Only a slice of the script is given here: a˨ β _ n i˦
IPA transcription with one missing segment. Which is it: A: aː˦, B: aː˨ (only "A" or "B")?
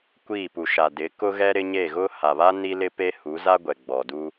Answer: A